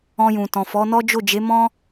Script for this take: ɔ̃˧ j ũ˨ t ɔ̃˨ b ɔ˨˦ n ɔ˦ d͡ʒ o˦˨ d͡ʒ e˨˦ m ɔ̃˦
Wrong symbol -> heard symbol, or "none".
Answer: b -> f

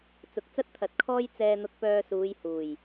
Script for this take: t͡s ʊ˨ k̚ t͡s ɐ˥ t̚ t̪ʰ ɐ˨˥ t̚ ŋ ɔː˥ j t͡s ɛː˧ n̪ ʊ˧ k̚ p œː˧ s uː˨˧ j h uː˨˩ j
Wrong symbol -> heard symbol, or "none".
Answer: ŋ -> kʰ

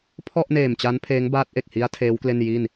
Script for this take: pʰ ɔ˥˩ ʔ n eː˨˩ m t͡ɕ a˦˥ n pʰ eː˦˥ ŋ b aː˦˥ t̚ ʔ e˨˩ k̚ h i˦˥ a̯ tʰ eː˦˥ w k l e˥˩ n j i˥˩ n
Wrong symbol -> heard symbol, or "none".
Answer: none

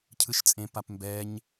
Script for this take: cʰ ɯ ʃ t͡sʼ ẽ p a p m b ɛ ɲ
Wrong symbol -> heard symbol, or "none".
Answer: none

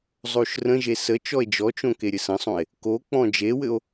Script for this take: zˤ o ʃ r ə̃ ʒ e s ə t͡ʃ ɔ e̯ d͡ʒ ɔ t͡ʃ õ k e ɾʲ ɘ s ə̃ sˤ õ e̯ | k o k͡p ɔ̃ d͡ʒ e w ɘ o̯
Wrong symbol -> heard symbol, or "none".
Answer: none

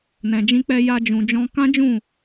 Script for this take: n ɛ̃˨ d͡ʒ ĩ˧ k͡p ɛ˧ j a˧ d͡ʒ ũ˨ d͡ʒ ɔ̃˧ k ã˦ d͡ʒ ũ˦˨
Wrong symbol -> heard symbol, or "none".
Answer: none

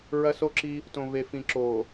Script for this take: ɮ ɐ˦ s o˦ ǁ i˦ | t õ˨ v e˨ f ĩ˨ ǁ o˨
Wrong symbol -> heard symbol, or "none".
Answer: ɮ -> ɹ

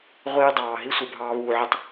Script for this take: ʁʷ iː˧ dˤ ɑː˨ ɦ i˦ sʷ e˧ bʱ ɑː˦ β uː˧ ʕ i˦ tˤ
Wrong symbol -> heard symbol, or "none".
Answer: none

